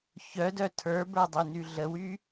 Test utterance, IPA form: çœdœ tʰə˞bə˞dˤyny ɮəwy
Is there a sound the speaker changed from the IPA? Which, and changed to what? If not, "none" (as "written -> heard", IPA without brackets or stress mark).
none